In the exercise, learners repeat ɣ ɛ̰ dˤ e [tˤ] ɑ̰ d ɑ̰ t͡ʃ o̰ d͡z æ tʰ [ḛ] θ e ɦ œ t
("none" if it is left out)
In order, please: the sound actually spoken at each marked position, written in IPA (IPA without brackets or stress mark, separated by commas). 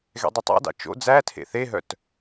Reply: tˤ, ḛ